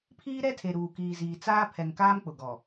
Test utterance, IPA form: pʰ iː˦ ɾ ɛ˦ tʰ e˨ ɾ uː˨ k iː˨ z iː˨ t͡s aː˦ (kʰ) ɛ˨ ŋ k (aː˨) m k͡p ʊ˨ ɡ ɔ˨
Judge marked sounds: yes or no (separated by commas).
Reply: no, no